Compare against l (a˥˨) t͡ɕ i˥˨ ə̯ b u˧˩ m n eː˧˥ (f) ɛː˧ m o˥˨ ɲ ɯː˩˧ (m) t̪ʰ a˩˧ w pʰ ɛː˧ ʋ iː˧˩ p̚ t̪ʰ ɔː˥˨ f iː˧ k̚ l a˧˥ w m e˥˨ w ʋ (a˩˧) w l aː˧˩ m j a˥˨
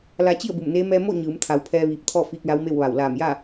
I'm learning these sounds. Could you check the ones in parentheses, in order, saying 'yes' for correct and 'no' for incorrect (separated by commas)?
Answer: no, no, yes, no